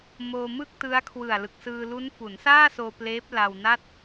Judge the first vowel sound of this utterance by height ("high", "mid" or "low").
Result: mid